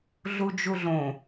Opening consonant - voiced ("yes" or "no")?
yes